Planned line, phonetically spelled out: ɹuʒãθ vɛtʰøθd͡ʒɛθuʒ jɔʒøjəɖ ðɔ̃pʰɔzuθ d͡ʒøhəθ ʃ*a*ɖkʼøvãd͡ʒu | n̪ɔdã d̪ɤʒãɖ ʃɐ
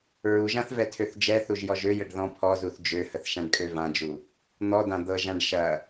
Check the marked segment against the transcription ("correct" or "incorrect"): incorrect